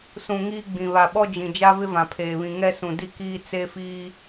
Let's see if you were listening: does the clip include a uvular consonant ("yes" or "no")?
no